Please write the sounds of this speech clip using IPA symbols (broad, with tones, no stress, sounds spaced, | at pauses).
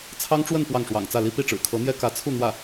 t͡sʰ ɑ˥ ŋ ʈ͡ʂ w ə˥˧ n p w ɑ˥˩ ŋ ʂ w ɑ̰˨˩ ŋ t͡s ä˥˩ l i˥ p i˥˩ ʈ͡ʂ ɻ̩˨˩ kʰ ɤ˧˥ n̪ j ɛ˥ k ä˧˥ t͡sʰ u˥˧ n̪ w ä˥˩